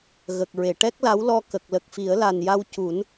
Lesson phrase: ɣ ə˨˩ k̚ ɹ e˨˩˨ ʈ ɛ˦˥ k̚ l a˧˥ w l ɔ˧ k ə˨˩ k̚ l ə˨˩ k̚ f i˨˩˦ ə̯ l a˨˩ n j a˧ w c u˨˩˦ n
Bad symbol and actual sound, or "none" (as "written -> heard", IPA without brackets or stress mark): none